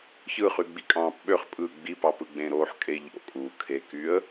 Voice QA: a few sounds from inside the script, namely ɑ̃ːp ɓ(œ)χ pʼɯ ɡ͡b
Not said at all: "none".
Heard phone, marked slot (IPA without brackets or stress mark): ø